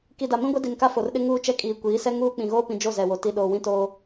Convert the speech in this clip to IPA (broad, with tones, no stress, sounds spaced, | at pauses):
k i˨ d a˨ m ĩ˦ ɡʷ ɛ˦ d i˨ n k a˦ f o˨ r ɗ ɪ˦ ŋ uː˦ t͡ʃ ɛ˦ kʼ iː˨ kʷ iː˨˦ s ɛ˦ ŋ uː˦ k͡p ĩ˨ ɣ oː˦ p ĩ˨ d͡ʒ o˦˨ z ɛ˨ w o˨ t i˨ ɗ oː˨ w ĩ˦ t oː˦